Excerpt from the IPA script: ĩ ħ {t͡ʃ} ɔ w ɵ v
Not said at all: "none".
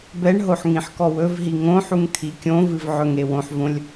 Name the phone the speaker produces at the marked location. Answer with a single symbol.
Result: k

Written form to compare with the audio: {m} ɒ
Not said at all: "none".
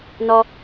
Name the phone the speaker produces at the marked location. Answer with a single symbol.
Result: n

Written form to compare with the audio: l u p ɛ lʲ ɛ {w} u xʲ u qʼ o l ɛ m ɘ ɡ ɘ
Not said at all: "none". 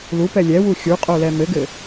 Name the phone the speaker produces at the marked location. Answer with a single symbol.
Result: w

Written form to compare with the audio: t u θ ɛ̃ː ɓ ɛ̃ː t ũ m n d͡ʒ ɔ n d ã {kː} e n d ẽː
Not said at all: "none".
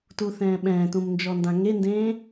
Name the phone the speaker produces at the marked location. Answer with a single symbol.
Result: ŋ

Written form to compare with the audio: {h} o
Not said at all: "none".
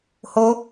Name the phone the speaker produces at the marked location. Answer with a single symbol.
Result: h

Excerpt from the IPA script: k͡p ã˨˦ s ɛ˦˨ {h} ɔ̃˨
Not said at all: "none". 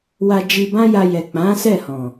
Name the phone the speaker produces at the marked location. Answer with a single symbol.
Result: h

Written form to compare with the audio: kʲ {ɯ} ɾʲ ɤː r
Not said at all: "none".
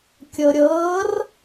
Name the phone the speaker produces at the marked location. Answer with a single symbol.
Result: ɤ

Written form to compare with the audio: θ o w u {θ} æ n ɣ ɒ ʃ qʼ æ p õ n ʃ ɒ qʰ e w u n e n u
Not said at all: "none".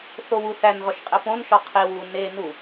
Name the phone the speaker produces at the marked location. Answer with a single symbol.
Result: θ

